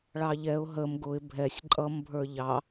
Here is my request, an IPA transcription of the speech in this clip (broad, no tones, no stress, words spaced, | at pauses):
ɭɑʎɛʊ̯ ɦəm ɡʊɪ̯ bʱɛsʲ ǃʼʌmbʱə˞ ʎɑ